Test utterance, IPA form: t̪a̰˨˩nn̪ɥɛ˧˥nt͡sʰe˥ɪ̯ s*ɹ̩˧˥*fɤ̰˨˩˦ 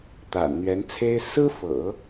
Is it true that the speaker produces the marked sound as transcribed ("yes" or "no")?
no